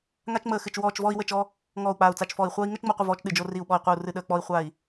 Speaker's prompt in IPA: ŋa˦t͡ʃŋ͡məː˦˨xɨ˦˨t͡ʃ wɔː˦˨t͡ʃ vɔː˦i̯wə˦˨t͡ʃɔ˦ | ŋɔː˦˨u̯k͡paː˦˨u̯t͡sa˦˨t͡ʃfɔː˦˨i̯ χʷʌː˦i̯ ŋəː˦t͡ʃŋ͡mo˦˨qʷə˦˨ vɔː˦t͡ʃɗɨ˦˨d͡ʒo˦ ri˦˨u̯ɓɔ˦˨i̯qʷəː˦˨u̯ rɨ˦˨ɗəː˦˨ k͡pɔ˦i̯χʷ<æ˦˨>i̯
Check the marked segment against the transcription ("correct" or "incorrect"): incorrect